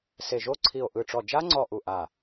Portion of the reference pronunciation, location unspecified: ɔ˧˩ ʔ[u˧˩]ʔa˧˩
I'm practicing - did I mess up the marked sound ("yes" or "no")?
no